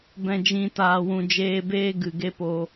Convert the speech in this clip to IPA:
b ɛ̃˨ d͡ʒ ĩ˨ t aː˨ w ũ˨ d͡ʒ eː˧ b eː˦ ɡ ɨ˨ ɡ e˦ p o˧

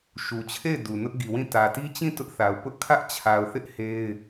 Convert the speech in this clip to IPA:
ʃ u˨ t͡ɕʰ e˦˨ ɪ̯ d u˨ n ʊ˦ ʔ ɡ i˨ w ĩ˦˨ t ä˨ t i˦ t͡ɕ ĩ˦˨ t ʊ˦ ʔ θ a˨ ʊ̯ p ʊ˦ ʔ kʰ ä˦ ʔ t͡ɕʰ a˨ ʊ̯ θ ɪ˦ ʔ h e˦ ɪ̯

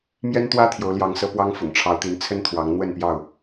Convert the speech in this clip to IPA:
m j ɛ˦ n t̪ w ä˦ t̪ʰ j o˨˦ ʊ̯ l j ɑ˨˦ ŋ s ɤ˨˦ p w ɑ˦ ŋ f ʊ̰˨˩ ŋ ʈ͡ʂʰ ɑ˨˦ ʊ̯ t̪ i˨˦ n t͡sʰ ə˦ n t̪ʰ w ɑ˨˦ ŋ n̪ w ə˥˨ n p j ɑ˥˨ ʊ̯

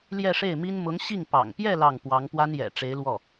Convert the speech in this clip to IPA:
l j ɛ˥˧ ʂ e˥˩ ɪ̯ m i˥ n m ʊ˧˥ ŋ ɕ i˥˩ ŋ p ɑ̰˨˩ ŋ p j ɛ˥˧ l ɑ˥˩ ŋ p w ɑ˧˥ ŋ p w a˥ n j ɛ̰˨˩ ʈ͡ʂ e˧˥ ɪ̯ l w ɔ˥˩

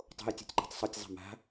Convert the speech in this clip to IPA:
tˤ o̤ j tʲ o̤ tʲ ǃ a̤ tˤ sˤ u tʲ zˤ a̤ m a̤

